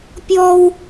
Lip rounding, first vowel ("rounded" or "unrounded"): rounded